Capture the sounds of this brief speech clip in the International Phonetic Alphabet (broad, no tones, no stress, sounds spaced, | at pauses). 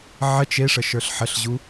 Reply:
ʕ ə t͡ʃ e ʂ ə ʃ ə˞ ɬ ħ ə ɬ ʑ u